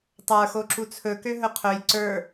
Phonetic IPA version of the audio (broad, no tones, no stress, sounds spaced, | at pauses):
tˤ ə˞ x o ǁ u t͡sʰ ɵ k ø ɦ ɵ qʰ ɵ j ǀ ə˞